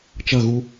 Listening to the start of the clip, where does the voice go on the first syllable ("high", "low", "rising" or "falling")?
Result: falling